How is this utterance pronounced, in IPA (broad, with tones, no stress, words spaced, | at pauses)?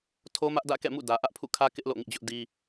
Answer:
tʰo˦mä˦ʔ dä̰˦˨kɛ̰˦˨mṵ˦˨ dä˨ʔä˦ʔpʰṵ˦˨ kʰä˦kɪ˦ʔ lo̰˦˨ŋḭ˦˨d͡ʑʊ˦ʔdi˦